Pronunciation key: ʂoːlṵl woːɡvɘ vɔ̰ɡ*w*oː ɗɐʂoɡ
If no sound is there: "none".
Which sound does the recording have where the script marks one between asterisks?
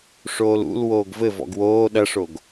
w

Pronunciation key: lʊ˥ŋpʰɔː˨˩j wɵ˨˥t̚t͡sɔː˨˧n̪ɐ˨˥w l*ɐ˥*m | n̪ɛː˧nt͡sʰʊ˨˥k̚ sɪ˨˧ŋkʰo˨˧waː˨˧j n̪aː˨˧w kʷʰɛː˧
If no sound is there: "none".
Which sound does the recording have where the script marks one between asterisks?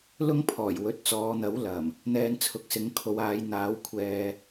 ɐ˨˩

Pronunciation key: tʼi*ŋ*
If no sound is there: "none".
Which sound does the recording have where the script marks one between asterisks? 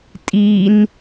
n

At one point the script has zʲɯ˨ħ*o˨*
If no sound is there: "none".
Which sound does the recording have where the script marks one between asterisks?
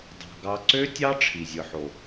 o˨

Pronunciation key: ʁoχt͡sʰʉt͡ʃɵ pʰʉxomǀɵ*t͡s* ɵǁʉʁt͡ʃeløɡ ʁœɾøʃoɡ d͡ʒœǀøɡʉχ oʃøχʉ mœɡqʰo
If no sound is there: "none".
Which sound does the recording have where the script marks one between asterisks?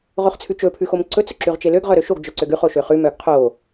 t͡s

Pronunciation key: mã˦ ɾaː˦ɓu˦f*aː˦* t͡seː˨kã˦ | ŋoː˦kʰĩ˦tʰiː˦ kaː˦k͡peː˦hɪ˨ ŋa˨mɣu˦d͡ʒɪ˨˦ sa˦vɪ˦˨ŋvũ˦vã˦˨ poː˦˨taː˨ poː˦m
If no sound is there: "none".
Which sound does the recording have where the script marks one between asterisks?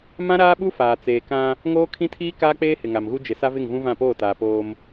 aː˨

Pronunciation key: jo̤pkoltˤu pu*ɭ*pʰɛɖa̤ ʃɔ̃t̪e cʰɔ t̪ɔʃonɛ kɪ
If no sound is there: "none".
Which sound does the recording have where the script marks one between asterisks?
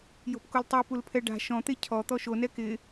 l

